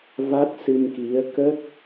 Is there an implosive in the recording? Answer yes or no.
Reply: no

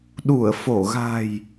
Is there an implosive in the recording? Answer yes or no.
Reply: yes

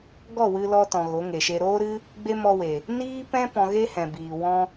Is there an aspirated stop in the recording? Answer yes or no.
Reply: no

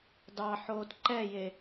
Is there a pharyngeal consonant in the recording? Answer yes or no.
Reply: yes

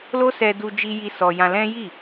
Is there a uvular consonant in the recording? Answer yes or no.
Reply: no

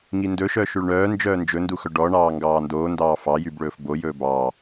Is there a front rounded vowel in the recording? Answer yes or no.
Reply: yes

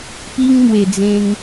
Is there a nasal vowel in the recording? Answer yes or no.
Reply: yes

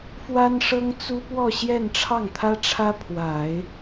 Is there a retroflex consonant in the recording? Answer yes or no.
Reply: yes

